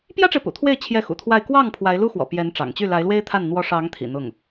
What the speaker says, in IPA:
p j ä˥ ʈ͡ʂ e˨ ɪ̯ p ṵ˨˩ t̪ʰ w e˥˧ ɪ̯ t͡ɕʰ j ɛ˥˩ x ṵ˨˩ t̪ʰ w a˥˧ ɪ̯ k w ɑ˥˩ ŋ pʰ w a˧˥ ɪ̯ l u˥ x w ɔ̰˨˩ p j ɛ˧˥ n ʈ͡ʂ ɑ̰˨˩ ŋ t͡ɕ y˥˩ l a˧˥ ɪ̯ l w e˥ ɪ̯ t̪ʰ a˥˩ n n̪ w ɔ˧˥ ʂ ɑ˧˥ ŋ t̪ʰ ḭ˨˩ n̪ ʊ˥˩ ŋ

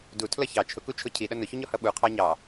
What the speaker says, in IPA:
d u tʰ l ʌ ç ɑ t͡ʃʰ ʊ k u t͡ʃʰ ʊ cʰ i ɗ ʌ n ʊ ç u ɲ ɔ h ʌ ɓ u qʰ ɑ ɲ ɑ

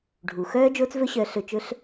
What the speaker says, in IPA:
ɖʱ u˨ x œː˦ d͡ʒ oː˦ t͡s v ɵ˦ ɕ œː˧ ɬ ɵ˧ t͡ʃ ɵ˦ ɬ

